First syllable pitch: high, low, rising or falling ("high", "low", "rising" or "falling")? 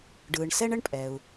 low